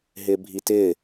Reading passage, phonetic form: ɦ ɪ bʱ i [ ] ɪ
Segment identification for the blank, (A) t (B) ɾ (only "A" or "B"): A